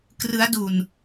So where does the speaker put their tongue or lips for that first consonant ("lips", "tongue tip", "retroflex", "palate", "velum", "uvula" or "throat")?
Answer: velum